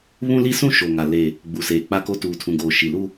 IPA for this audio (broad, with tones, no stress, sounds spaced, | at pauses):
β ũ˦ l i˦ s ũ˦ ʃ o˨ ŋ a˨ l e˨ | ɡ͡b u˨ s eː˨ k͡p a˦ k o˦ t uː˨ tʰ ũ˨ ɡ oː˨ ʃ i˨ l u˦